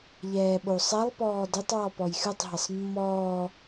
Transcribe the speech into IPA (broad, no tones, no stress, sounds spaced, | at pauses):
ʎ ɛː ɓ o sˤ ɛ lˠ p ɔː d ɪ tˤ w ɔ p ɔ j x ɨ tˤ ɦ ɪ sˤ mː ɔː